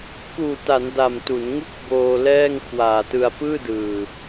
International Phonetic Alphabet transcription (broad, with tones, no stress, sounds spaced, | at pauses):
k uː˨˩ t a˩˦ n d a˨˩ m t u˩˦ n ŋ u˥˩ k̚ b oː˧ l ɛː˥˩ ŋ kʰ w aː˨˩ t ɯ˧ a̯ p ɯː˥˩ d ɯː˨˩